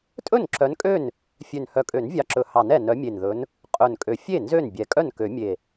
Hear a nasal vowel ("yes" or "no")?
no